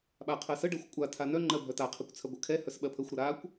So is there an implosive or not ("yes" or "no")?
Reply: yes